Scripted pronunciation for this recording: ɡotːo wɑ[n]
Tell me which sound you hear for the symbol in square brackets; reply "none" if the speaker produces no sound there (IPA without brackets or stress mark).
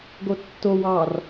r